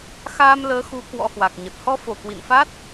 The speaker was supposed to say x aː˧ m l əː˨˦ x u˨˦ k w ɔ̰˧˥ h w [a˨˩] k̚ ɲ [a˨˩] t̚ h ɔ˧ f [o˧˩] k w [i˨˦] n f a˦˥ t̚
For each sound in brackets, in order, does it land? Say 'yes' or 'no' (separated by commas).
yes, no, yes, no